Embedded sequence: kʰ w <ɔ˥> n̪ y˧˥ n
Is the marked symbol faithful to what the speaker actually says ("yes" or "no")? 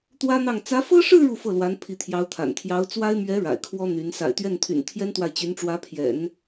yes